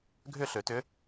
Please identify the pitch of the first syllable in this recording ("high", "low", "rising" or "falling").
falling